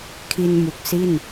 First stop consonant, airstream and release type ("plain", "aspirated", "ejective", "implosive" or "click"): aspirated